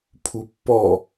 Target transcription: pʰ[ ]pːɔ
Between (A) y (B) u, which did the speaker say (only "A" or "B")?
B